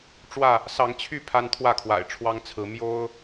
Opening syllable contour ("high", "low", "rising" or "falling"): falling